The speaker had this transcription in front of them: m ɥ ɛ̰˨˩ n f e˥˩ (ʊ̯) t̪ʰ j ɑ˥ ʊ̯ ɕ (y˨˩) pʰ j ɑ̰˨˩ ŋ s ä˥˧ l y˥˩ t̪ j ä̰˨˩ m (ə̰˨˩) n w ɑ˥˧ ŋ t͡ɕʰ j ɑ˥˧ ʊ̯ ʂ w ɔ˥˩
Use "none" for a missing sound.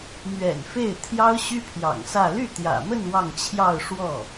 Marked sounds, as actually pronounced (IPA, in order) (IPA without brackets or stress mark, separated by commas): ɪ̯, y˥, ə˥˧